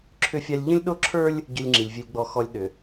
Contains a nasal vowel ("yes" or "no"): yes